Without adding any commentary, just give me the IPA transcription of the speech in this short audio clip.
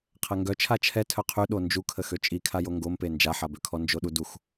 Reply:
qʰ ɛ ŋ ɡ œ t͡ʃʰ a t͡ʃʰ ɛ tʰ œ qʰ y ɗ o n d͡ʒ u kʰ ə x ø t͡ʃʼ i kʰ a j o ŋ ɡ o m p e n d͡ʒ a ħ a b ø kʰ ɔ n d͡ʒ o ɗ u d u x

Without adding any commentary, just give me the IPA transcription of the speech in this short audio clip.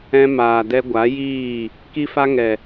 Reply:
ɛ̃˧ m aː˨ d ɛ˧ ɡʷ a˨˦ j iː˦˨ | k i˦ f a˦ ŋ ɛ˨

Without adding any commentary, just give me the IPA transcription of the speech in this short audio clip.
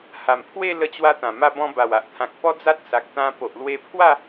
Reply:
h a˨˩ m pʰ w e˥˧ l ə˧ t͡ɕ w a˧ t̪ ã˨˩ m a˧ b ɔ̃˧ b a˨˩ w a˨ ʔ t̪ʰ ã˨ k̚ p ɔ˦ d͡z a˦ t̚ s a˨ k̚ t̪ ã˧ p o˨ ʔ l w e˧ pʰ w a˥˧

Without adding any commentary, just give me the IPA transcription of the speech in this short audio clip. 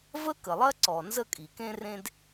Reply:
v ə˥ k ə˩ lˠ ɐ˥ ǀ ɔ˩ n z ə˥ kʼ i˩ k ẽ˥ r ẽ˥ d

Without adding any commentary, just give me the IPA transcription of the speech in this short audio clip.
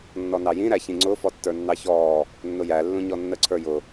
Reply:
nː ɔ n ɑ j ĩ ɾ æ ç ĩ ŋ͡ǀ ʊ f ɔ tː ə˞ nː ɑ ç ɔː | nː ʊ j æ lː ũ ɲ ɔ nː ə ǀʰ ə˞ j ʊ

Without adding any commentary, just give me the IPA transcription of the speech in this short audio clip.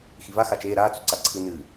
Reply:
x i v a x a t͡ʃ eː ɾ aː t͡s u ǀ a ǀʰ ɨ n ɨː

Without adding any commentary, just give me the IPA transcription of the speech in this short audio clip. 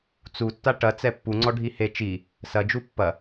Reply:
t͡s u tː a ʈ ɐ t͡s ɛ pː u ŋ͡ǀ ɔ ɖʱ i h e t͡ʃ i | s ɐ d͡ʒ u pː ɐ

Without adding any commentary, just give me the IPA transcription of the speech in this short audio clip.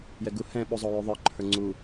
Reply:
j ɛ ɡ u h ɛ̃ ɓ u zˤ o j ʉ ðˤ ə˞ ǃʰ ə˞ ŋ͡ǀ u

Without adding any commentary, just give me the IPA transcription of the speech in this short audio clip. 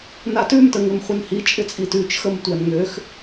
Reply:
n a t ʉ m t ə ŋ ɪ m χʷ ə n h i t͡ʃʼ ɪ t͡sʼ i t ʉ t͡ʃ x ə m tʷ æ n ŋ ø x

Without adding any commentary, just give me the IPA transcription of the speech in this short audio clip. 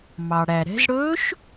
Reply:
m ɑ˩ ɽ æ˩ ɾ ɛ̤˩˧ z ɽ ɵː˧˥ ʃ

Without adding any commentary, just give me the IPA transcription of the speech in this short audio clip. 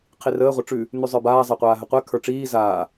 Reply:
qʰ i r əː ʁʷ ə ʈ͡ʂ ʉ | n ʉ zˤ ə˞ b aː zˤ e qʷ aː ɦ ə qʷ ɛ kʰ ə˞ ʈ͡ʂ iː z aː

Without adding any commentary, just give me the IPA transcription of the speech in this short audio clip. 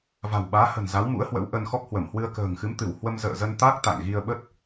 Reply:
v a̤˨˩ w ɓ aː˨˦ h ə̤˨˩ n z a˨˦ w m ṵ˧˥ ə̯ h w ə̰˧˥ w ʔ ə˧ n x ɔ˦˥ k̚ h w ə˧˩ m h w ɨ˧ ə̯ k ə̤ː˨˩ ŋ x ɨ˨˦ m t̪ ɨ˧˩ w h w ə˧ m z ə̰ː˧˨ z ə˧ n t̪ a˦˥ k̚ t̪ a̰˧˨ ŋ ɣ i˧ ə̯ ɓ ə˦˥ t̚

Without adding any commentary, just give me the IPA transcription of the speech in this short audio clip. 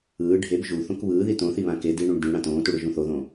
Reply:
ɯː ɖʱ e b ʒ u θ õ k β ɯː ð i t õ θ i β ã k e d i ɳ ũ ɳ d ĩ ɽ ã t õː t u ɽ ɯ ʒ ũ θ o ð õː

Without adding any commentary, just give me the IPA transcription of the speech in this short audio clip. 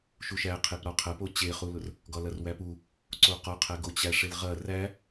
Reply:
ʃ u ʃ æ qʰ e p ɾ ɒ qʰ ɐ p o t͡ɕ e χ u l ʊ r | ɡ ɒ l ɐ r w æ p u | ǀ o q ɒ qʰ æ ɡ o t͡ɕ æ ʂ e l ʁ ɐ r æ

